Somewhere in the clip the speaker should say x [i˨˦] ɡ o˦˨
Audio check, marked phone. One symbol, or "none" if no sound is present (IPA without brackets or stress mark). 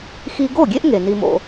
i˦